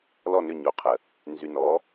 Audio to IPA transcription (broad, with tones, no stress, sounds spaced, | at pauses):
l ɔ˧˩ n ʏ˧˩ ɲ o˩˧ qʰ ə˩ | n z y˩ n ɔ˩˧